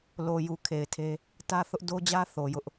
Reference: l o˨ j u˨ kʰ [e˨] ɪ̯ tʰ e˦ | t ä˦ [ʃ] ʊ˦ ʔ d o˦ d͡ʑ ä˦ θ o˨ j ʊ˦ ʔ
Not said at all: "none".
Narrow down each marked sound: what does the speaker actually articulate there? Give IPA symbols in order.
e˨, θ

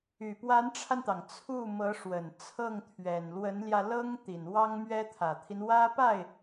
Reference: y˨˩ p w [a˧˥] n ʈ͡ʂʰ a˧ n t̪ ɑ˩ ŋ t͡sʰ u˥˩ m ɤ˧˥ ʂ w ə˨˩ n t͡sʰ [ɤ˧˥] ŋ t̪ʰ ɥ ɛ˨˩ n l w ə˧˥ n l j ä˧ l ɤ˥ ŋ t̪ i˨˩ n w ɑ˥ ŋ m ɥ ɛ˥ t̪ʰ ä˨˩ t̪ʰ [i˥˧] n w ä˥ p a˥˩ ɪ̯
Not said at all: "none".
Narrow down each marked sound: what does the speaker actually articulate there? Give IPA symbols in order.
a˧˥, ɤ˥˩, i˦

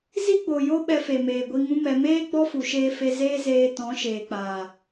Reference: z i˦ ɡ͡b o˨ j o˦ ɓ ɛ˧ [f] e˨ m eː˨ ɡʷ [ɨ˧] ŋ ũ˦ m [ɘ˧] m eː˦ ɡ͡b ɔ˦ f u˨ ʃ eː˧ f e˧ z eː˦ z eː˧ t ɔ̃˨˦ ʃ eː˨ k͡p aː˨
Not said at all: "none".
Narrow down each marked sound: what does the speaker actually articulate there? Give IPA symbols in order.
f, i˧, ɛ˧

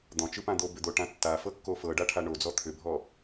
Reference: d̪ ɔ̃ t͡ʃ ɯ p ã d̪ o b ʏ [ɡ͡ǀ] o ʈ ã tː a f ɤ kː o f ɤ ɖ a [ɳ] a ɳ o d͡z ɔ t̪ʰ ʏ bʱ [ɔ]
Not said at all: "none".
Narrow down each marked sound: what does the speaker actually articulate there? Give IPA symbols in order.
d̪, ʈʰ, ɔ

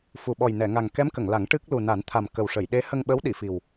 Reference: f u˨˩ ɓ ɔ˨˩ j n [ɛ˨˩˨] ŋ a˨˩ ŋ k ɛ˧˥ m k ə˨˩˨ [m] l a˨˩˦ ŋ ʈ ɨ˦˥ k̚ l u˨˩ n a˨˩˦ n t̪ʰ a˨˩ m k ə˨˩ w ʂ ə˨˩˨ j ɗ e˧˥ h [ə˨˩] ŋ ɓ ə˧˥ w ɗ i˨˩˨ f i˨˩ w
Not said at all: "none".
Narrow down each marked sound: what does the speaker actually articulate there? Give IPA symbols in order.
ɛ˨˩˨, ŋ, ə˧

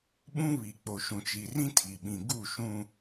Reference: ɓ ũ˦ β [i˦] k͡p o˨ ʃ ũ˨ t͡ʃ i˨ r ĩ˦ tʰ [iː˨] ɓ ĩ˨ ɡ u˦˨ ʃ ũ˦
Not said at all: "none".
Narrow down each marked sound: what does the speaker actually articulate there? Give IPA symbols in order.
i˨, i˨

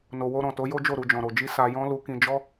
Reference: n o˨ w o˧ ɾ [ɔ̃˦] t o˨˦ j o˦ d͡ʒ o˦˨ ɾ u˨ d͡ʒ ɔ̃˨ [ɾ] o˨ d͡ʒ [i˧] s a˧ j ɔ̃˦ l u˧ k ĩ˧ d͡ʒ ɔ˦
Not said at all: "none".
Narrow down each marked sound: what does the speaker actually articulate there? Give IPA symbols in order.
ɔ̃˨, ɾ, i˧

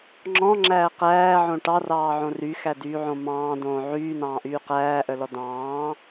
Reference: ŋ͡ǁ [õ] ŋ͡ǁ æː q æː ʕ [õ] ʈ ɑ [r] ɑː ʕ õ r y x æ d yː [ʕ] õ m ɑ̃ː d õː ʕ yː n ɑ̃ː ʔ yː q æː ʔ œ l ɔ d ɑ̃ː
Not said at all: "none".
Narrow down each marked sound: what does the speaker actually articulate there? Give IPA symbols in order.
ɔ̃, õ, r, ʕ

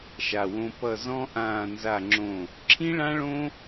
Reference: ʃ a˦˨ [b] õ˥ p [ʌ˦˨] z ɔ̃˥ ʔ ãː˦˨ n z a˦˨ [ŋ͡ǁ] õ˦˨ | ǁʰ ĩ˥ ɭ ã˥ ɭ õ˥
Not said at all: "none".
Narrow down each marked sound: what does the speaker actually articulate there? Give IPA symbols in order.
w, ʌ˦˨, ŋ͡ǁ

